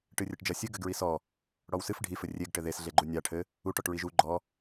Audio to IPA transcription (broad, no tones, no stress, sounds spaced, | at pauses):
ʈ ɨ rʲ ɘ ʈ d͡ʒ ɐ sʲ ɨ ɡ ɘ ɡ ɹ i s ɔ | ɽ ɔ w s ɨ f ɖʱ i f ɘ rʲ e ɡ ʈ ɘ ð e s ɮ e ɡ͡ǃ u nʲ a ʈʰ ɘ | u ʈ ɔ ʈ ɹ i ʒ u ɡ͡ǃ ɔ